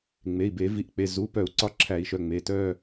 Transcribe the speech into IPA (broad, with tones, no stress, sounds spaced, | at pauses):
ŋ͡m e˩˧˩ i̯ b e˧˩˧ v i˩˧˩ ʔ k͡p e˩˧˩ z u˩˧˩ p œ˧˩˧ u̯ ǀ ɒ˧ ǁʰ æ˧˩˧ i̯ ʃ œ˩˧˩ ŋ͡m e˩˧˩ t œ˧˩